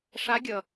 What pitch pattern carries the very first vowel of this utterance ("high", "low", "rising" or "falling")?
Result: rising